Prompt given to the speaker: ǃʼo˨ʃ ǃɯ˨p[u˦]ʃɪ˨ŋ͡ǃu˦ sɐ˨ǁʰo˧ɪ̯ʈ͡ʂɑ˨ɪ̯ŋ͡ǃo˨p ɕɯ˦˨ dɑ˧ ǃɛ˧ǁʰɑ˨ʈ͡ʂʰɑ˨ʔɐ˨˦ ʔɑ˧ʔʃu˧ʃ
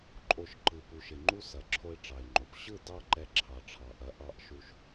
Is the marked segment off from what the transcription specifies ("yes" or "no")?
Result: yes